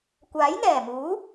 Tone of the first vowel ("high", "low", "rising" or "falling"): rising